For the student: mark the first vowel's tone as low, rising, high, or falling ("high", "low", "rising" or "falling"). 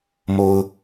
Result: low